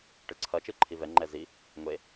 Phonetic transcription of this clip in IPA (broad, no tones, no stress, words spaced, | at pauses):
ʈɯǀʰʌ t͡ʃɯǃʰivɛ ŋ͡ǃɛzi | ŋʷe